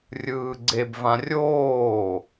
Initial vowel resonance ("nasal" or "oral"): oral